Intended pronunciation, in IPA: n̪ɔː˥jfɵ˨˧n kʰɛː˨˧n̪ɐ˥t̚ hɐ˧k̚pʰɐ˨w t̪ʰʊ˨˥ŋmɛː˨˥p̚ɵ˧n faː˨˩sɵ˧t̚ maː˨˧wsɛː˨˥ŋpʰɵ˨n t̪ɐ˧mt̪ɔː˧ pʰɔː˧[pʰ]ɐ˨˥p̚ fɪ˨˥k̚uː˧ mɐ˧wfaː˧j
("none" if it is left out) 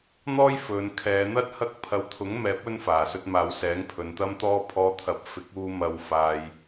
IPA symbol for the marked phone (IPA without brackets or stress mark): t̪ʰ